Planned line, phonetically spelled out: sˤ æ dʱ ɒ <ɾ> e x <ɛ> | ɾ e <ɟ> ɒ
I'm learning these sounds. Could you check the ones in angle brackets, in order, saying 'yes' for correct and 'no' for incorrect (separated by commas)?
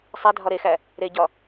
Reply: yes, no, yes